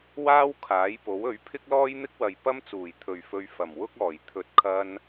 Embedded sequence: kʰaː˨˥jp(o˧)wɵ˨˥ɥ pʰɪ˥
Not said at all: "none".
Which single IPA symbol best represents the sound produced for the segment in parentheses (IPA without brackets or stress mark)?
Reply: o˨˥